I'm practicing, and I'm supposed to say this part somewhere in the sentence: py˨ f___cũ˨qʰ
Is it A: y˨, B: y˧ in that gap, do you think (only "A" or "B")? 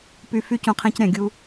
B